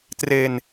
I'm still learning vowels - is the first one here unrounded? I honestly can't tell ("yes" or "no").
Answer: yes